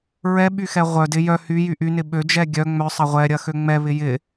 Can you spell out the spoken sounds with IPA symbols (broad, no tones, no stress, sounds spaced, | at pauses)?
ɹ ɛ ɓ y x ɛ ʁʷ œ d ɪ j œ h y j y ʔ y n ɪ ɓ ø d͡ʒ ɛ ɡʲ œ ŋ͡m œ sˤ ɐ ʁʷ ɛ ɾʲ ɐ x ø ŋ͡m ɛ β ɪ j ɪ